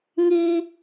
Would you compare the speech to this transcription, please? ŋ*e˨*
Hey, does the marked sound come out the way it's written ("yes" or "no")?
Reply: no